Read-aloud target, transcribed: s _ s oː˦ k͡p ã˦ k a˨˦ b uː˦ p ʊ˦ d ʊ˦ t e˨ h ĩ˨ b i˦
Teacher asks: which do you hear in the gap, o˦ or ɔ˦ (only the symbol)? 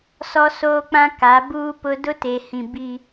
ɔ˦